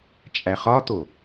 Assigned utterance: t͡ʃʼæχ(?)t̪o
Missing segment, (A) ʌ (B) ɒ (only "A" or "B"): B